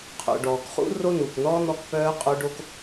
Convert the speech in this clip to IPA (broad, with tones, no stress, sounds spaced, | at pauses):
qʰ o̰˨ ɖ ɔː˨ k χ ṵ˦ r o˦ n uː˨ k n ɔː˦ n̪ ɔ˧ k p œː˧ qʼ o˧ ɖ o˧ k